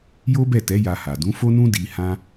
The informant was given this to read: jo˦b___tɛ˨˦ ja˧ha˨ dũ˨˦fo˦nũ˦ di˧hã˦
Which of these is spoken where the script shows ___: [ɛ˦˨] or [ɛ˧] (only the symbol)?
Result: ɛ˦˨